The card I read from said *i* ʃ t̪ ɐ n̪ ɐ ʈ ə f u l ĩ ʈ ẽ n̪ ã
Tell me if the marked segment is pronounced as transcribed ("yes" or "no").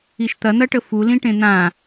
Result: yes